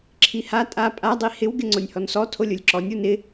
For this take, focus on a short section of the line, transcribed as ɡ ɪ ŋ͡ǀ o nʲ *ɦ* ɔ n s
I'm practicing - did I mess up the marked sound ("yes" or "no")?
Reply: yes